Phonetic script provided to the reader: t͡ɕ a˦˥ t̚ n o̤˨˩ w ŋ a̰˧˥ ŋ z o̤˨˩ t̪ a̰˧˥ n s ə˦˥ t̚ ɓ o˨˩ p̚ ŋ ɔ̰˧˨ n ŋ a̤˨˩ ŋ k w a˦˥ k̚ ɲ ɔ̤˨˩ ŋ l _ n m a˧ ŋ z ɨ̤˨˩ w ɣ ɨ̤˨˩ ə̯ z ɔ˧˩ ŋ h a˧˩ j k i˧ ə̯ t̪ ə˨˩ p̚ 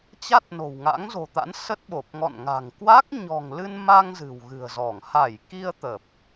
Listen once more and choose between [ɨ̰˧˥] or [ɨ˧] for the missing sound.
ɨ˧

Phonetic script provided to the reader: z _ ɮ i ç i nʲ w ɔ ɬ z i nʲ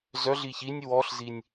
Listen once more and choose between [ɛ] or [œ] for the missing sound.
œ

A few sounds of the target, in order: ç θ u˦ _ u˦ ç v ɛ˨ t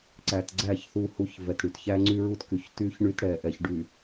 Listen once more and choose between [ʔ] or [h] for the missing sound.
h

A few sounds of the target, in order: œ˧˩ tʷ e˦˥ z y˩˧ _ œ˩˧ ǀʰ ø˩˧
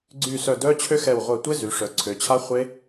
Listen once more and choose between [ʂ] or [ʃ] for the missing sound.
ʂ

